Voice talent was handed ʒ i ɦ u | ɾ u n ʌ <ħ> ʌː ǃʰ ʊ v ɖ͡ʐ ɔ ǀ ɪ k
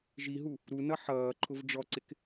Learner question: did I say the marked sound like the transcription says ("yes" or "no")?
yes